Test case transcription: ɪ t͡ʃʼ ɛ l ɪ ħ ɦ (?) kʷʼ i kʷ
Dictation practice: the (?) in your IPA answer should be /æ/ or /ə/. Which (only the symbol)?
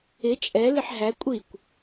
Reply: æ